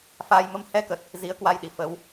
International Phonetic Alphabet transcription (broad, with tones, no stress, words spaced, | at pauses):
faː˧jmə˧m hɛ˧kə˨˩t̚ | zi˨˦ə̯kwa˧jɗi˧˩ fə˨˦w